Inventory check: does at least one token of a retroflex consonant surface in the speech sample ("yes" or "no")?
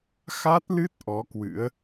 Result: no